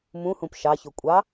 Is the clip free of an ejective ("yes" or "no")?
no